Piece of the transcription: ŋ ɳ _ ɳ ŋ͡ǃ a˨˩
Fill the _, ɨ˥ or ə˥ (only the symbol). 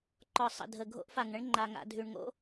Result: ə˥